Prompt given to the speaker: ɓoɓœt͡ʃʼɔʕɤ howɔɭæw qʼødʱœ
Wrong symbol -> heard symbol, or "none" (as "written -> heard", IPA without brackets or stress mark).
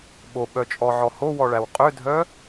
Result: ɤ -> ɔ